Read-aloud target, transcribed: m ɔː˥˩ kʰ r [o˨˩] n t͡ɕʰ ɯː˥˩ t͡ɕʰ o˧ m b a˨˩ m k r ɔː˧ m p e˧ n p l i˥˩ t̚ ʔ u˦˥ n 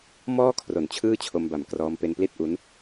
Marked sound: correct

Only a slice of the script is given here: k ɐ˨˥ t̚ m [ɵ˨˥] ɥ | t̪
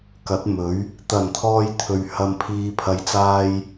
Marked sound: correct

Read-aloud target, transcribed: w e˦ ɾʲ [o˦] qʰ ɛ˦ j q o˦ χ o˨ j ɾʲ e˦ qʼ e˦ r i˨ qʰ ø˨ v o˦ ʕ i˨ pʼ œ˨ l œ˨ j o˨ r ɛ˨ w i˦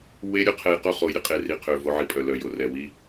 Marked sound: incorrect: o˨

